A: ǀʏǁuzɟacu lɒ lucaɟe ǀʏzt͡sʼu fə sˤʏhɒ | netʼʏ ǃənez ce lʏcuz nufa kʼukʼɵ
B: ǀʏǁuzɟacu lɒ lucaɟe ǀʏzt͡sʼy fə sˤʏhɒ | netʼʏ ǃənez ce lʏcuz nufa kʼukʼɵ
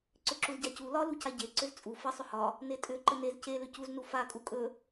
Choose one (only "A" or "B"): A